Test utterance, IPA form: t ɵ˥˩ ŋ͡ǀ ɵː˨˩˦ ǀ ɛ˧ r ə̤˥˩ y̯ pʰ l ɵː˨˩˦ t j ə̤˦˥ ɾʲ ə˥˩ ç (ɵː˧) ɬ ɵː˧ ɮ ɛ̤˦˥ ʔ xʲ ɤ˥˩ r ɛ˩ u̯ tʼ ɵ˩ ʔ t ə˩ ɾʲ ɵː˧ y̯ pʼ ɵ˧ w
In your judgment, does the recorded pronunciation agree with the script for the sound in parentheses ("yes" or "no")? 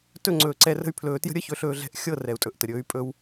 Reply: no